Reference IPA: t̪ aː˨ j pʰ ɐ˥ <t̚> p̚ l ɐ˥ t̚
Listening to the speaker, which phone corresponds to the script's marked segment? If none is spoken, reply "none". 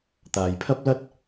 none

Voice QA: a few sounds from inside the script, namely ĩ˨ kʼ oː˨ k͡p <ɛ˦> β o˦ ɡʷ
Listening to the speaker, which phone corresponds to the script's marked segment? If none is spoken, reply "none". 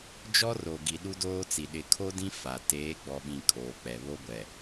ɛ˨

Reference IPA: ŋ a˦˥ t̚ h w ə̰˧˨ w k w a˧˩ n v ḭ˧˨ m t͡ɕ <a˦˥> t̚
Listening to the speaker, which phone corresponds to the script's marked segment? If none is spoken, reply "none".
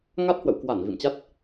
a˦˥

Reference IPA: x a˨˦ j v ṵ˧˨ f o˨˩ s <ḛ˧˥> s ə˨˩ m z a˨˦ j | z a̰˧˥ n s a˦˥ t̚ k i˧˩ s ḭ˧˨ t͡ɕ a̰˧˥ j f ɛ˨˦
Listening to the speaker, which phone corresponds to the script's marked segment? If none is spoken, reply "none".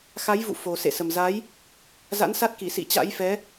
ḛ˧˨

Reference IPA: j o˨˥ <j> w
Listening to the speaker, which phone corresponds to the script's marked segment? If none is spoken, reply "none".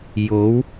none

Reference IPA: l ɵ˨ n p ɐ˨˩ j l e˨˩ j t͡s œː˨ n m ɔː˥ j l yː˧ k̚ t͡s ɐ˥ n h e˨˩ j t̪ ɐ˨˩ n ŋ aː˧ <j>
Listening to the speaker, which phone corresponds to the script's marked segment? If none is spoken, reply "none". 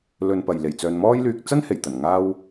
w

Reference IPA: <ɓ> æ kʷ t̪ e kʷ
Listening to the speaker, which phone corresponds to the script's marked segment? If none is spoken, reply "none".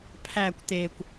pʰ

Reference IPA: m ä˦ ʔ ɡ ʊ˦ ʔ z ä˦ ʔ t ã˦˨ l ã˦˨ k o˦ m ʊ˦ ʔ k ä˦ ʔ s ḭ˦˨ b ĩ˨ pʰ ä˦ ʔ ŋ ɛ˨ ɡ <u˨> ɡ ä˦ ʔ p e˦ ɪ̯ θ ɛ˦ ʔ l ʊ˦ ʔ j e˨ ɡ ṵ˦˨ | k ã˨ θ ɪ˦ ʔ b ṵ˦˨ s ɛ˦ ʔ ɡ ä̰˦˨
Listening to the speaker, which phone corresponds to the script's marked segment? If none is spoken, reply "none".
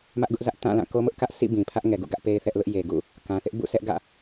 ṵ˦˨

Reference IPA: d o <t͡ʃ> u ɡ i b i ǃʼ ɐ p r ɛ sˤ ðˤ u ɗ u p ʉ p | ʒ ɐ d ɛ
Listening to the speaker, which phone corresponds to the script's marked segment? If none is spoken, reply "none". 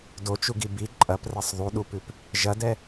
t͡ʃ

